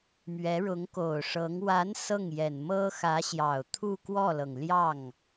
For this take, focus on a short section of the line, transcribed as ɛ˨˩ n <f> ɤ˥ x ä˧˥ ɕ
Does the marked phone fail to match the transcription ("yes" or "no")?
yes